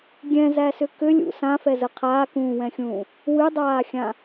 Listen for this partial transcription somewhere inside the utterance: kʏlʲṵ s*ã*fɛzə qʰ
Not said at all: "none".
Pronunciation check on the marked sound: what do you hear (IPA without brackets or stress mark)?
ã